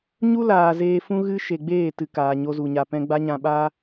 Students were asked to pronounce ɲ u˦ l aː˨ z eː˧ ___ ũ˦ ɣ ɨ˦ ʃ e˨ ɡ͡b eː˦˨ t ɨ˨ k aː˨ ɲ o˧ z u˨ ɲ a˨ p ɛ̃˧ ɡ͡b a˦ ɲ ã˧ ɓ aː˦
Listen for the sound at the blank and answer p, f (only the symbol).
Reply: f